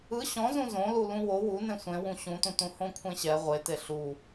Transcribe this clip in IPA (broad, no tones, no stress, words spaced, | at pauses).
ɯ ɕɔ̃zũ zõlu lũwo wu nẽsʷẽwũ ɕũtũtũ hõkʷʰẽɕɛ ʁʷete ɬu